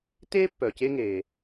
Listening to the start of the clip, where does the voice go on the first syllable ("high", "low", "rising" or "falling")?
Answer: high